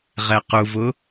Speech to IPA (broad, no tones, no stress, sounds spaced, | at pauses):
ʁ ɛ q u v ʊ